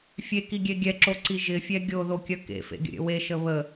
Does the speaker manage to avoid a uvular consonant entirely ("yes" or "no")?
yes